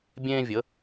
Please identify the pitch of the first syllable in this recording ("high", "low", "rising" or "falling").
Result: high